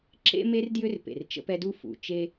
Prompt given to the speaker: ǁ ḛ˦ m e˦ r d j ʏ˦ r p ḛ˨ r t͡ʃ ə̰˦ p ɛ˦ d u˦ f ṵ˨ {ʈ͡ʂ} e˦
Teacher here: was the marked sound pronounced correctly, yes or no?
no